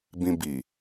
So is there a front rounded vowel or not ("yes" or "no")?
no